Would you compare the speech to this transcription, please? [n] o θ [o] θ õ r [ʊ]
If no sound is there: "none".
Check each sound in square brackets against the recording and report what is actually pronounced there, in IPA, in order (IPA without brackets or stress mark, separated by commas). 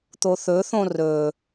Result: t̪, ɵ, ɵ